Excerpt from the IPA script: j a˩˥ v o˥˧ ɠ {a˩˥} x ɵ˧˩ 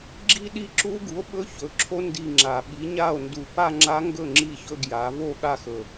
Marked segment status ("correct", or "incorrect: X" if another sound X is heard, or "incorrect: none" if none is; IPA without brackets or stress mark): incorrect: a˥˧